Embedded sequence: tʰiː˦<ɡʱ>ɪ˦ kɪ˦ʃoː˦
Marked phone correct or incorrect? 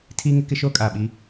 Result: incorrect